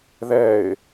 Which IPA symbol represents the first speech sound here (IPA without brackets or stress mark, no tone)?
ð